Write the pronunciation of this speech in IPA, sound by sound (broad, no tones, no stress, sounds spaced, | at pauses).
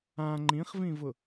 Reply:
ã ŋ͡ǃ ĩ χ v ĩ v ʊ